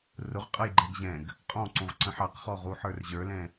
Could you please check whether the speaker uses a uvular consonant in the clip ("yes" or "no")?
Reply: yes